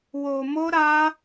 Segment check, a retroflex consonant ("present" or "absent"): absent